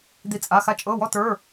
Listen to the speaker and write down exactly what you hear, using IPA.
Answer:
d̪ i˦˨ t͡sʼ a˧˥˧ x a˥ t͡ʃʼ ɤ˧˥˧ w ɔ˥ t ə˞˧˥˧

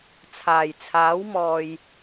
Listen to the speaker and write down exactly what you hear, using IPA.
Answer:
t͡sʰ aː˨˩ j t͡sʰ aː˨˥ w m ɔː˨ j

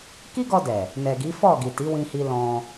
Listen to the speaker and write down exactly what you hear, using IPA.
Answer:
k i˦ ɡ ɔ˧ d ɛ˨ | n ɛ˨ ɡ i˨˦ f ɔ˦˨ ɡ i˨ t i˨˦ w ĩ˧ h i˧ l ɔ̃˧

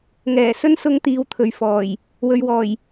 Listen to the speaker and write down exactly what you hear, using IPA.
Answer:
ŋ ɛː˨˩ s ɵ˥ n s ʊ˧ ŋ t̪ iː˨ w t̪ʰ ɵ˨ ɥ f ɔː˨˩ j | w ɵ˨ ɥ w ɔː˨˩ j

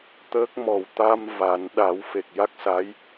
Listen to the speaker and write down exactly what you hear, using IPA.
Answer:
t̪ əː˦˥ k̚ m ɔ˨˩ w t̪ a˧ m v a˨˩˦ n ɗ a˨˩˦ w f e˨˩ k̚ j a˦˥ k̚ s a˧˥ j

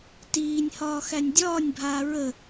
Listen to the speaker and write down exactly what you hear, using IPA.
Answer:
t iː nʲ h ɒː x æ nʲ dʲ ɒː nʲ bʱ aː ɹ ə

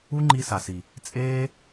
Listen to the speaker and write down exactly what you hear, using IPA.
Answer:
u˦ ŋ͡ǃ i˧ s a˨ s i˨ | t͡sʼ eː˦

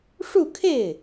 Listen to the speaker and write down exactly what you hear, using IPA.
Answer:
ʂ u˥˧ kʰ e˥˩ ɪ̯

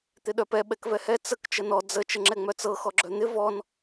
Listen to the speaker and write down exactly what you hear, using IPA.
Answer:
t̪ ɪ ɗ œ p ɛ ɓ ɛ k v ɛ h ɛ t͡s ə k t͡ʃ ə n ɔ d͡z ə t͡ʃ ə ŋ͡ǁ ɛ ŋ͡m œ t͡s ɤ x ɔ ɡ͡ǁ œ n̪ ɪ v ɔ n

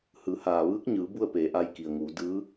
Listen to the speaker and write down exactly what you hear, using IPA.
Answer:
h ɯː˩˧ h aː˩ ʋ ɯː˧˥ k̚ ɲ ɯː˩˧ b u˥˨ ə̯ p eː˩˧ ʔ a˧ j k i˩ ə̯ ŋ uː˩˧ d ɯː˧˥

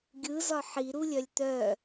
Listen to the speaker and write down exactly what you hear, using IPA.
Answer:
ɡʲ ɯ z ɒ ħ i ɾ u lʲ œ lʲ t̪ œ

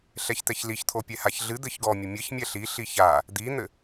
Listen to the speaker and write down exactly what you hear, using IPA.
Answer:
ɬ ɛ ç t̪ ɛ ç l i ç t̪ʰ o pʲ ɛ h a ç ɮ ɨ d̪ ɘ ç ɡ ɔ mʲ ɘ mʲ ɘ ç mʲ ɛ ɬ i ɬ i ç a | d̪ i n̪ ɘ

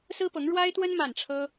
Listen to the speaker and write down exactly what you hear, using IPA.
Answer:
s ɹ̩˥ p ɤ˧˥ ŋ ɻ w a˥ ɪ̯ t̪ w ə˥ n m a˥˩ n ʈ͡ʂʰ ɤ˥

